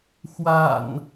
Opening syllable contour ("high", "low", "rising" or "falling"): low